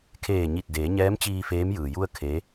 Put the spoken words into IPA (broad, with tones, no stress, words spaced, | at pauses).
kʰeː˧˩ɲi˧˩t̚ deː˩˧ɲɛː˧˥mt͡ɕiː˧ feː˧˥mjɯː˩ju˥˨ə̯ kʰe˧˥